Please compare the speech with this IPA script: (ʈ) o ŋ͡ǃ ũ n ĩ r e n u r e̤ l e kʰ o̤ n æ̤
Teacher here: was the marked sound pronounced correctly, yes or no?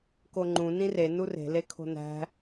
no